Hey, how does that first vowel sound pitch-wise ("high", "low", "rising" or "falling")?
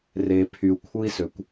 low